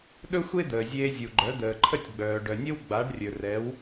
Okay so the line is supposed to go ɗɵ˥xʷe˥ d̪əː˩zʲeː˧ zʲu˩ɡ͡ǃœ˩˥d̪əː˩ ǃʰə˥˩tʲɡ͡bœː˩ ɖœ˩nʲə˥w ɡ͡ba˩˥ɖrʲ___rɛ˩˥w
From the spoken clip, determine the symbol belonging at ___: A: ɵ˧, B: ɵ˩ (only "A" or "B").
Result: B